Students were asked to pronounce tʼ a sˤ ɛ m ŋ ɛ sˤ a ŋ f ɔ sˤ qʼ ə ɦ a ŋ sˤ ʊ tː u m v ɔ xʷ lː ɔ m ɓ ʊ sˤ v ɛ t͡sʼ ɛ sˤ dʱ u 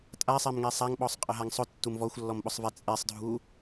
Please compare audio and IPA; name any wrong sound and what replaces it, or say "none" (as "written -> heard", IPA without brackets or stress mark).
f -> ɓ